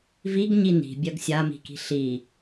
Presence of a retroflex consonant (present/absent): absent